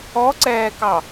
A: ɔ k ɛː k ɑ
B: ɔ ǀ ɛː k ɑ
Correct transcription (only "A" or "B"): B